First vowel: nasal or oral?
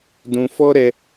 nasal